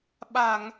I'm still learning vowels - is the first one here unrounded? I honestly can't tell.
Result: yes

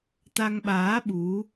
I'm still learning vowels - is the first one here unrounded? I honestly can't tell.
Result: yes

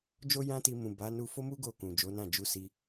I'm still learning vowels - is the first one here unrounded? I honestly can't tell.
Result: no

